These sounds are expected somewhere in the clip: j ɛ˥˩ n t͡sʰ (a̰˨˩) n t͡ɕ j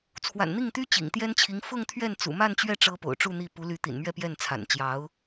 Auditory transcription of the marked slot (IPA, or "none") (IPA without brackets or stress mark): a̰˨˩